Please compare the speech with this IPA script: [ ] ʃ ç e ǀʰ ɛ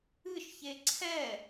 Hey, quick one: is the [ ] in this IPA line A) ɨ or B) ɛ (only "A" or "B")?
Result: A